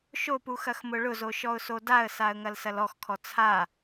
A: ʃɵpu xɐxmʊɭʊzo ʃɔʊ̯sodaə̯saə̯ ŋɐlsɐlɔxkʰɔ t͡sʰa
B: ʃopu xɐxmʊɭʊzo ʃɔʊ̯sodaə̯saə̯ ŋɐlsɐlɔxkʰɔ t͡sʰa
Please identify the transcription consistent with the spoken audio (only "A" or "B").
B